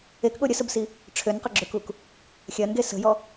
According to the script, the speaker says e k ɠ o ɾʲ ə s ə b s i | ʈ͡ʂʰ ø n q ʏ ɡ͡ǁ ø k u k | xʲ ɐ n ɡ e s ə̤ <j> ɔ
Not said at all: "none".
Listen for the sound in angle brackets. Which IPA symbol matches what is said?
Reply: j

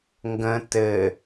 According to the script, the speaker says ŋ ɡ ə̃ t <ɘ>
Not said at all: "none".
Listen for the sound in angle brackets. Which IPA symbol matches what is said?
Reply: ɘ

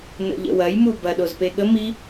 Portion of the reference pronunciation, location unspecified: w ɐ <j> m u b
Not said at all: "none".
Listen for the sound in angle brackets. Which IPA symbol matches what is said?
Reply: j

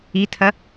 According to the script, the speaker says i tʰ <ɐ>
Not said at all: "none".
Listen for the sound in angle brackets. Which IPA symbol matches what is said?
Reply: ɐ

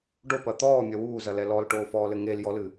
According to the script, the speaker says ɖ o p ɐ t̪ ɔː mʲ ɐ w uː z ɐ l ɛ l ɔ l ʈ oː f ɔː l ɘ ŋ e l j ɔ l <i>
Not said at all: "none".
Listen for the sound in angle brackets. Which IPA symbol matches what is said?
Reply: ɨ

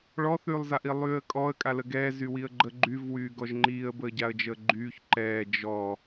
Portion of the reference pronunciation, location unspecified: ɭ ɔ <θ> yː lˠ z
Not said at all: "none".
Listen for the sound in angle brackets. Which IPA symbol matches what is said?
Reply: θ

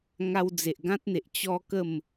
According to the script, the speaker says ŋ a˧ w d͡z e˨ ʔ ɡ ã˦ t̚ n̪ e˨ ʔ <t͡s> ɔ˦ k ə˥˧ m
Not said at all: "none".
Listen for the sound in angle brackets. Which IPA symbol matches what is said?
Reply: t͡ɕ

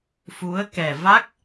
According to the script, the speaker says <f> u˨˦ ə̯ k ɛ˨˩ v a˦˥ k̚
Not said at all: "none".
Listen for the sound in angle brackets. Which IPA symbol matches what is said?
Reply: f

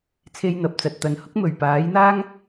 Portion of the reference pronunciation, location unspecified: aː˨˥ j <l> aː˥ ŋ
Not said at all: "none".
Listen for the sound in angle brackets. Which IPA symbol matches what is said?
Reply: n̪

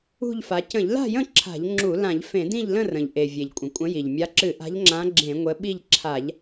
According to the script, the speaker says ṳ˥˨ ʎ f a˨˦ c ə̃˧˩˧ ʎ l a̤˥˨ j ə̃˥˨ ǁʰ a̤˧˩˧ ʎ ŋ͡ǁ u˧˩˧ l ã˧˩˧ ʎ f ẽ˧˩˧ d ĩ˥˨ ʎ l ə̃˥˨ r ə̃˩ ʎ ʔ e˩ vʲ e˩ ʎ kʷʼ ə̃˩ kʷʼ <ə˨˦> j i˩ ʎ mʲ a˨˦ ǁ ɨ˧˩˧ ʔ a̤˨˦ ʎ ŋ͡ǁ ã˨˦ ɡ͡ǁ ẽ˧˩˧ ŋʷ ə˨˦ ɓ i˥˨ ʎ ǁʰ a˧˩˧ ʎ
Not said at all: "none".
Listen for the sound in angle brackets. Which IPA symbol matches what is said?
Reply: ə̃˨˦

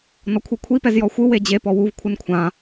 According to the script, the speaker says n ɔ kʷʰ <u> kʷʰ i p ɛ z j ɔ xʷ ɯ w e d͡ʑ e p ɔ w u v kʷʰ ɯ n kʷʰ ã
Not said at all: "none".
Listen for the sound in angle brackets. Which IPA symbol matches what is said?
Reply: ɯ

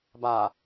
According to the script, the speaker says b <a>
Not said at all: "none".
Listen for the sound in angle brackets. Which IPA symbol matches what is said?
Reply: a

